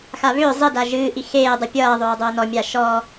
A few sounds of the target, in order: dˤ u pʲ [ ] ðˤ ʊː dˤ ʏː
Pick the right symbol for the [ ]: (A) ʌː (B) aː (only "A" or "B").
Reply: A